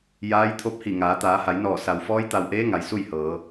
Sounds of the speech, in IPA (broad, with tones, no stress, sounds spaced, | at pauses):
j aː˧˥ j t̪ʰ o˧˥ p̚ h i˧˩ ŋ aː˩˧ t̪ aː˩˧ h a˩˧ j n ɔː˧˩ s a˩ w f ɔː˧˥ j t̪ a˧˩ w ʔ eː˧˥ ŋ a˩ j s u˥˨ j h ɤː˩˧